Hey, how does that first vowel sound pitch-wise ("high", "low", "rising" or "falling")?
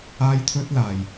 high